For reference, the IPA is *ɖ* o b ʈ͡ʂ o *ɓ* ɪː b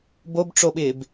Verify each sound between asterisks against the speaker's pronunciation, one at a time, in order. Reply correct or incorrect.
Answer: incorrect: b, correct

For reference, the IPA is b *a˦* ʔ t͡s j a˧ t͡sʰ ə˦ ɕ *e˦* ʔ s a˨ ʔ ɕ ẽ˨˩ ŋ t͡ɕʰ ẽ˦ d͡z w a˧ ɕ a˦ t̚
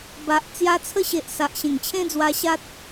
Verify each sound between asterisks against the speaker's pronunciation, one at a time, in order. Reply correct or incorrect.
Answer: incorrect: a˨, incorrect: e˨

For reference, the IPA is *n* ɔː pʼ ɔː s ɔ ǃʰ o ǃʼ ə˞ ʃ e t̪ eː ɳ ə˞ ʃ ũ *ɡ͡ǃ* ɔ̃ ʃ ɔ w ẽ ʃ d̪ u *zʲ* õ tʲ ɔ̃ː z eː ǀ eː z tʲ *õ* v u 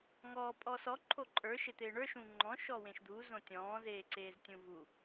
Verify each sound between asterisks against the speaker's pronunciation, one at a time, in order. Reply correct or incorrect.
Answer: incorrect: ŋ, incorrect: ŋ͡ǃ, incorrect: z, incorrect: ũ

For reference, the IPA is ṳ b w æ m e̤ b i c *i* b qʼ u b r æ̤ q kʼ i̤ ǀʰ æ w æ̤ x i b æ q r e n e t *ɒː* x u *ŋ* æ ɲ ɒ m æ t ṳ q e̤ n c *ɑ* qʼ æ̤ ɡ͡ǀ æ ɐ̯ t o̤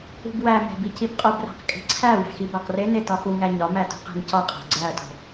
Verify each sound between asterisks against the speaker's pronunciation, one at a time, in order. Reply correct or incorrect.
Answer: correct, incorrect: ɒ, correct, incorrect: ɒ

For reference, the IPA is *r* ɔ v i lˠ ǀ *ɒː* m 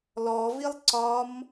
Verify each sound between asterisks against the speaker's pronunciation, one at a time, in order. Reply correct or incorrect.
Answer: incorrect: l, correct

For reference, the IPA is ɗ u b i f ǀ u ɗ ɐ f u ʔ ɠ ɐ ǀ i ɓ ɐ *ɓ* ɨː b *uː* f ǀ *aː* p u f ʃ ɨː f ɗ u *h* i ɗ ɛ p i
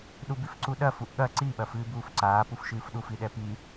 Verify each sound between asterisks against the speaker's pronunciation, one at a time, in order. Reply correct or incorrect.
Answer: incorrect: f, correct, correct, incorrect: f

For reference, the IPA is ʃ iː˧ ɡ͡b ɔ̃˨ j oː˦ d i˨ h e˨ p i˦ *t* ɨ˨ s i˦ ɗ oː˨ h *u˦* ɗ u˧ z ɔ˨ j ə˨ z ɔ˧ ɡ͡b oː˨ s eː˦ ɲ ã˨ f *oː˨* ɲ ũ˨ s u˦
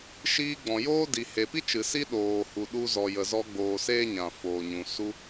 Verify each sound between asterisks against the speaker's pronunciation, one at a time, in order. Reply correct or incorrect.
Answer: incorrect: t͡ʃ, incorrect: u˨, correct

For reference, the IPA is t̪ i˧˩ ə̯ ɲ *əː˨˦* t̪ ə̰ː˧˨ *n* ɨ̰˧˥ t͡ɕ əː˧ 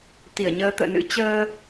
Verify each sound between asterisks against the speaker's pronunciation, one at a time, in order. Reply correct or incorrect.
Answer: correct, correct

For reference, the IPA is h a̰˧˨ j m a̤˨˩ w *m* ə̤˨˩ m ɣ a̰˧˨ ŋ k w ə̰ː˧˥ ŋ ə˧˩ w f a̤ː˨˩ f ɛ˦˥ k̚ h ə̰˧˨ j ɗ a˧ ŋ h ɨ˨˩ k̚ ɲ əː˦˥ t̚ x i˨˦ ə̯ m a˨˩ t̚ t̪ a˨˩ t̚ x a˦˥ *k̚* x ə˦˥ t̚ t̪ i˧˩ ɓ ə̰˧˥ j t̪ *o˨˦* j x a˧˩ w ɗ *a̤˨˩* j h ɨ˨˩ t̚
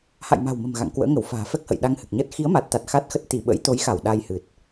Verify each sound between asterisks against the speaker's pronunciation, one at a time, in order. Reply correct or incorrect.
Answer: correct, incorrect: t̚, correct, incorrect: a˧

